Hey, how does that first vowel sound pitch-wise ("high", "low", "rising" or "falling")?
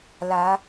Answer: rising